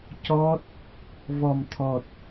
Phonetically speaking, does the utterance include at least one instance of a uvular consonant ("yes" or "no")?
no